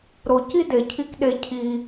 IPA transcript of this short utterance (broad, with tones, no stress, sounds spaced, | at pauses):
ɾ o˦ c i˥ d e˨ cʰ i˦ k ɗ e˥ cʰ i˦